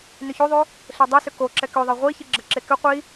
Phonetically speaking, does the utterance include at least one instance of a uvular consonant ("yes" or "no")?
yes